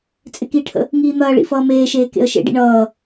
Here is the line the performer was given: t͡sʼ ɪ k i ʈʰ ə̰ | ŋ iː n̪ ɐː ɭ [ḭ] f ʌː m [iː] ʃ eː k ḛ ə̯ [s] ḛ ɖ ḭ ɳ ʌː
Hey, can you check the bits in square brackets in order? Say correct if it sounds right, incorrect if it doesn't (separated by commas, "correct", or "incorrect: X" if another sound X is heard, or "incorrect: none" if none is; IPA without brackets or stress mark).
correct, incorrect: eː, incorrect: ʃ